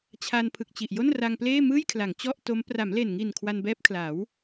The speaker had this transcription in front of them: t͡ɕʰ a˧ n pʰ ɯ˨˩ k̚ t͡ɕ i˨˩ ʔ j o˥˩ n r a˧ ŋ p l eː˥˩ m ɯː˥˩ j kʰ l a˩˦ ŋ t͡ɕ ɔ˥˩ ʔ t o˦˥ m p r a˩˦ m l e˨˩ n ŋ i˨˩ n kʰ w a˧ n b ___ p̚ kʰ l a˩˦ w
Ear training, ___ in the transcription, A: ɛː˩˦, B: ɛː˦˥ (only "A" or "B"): B